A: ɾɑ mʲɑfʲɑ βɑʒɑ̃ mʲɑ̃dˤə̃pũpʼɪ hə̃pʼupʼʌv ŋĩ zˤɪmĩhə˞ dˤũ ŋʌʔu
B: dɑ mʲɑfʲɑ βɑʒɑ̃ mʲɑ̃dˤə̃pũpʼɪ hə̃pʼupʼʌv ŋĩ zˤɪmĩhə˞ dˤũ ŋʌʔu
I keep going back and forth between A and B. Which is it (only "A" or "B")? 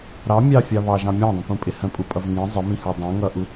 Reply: A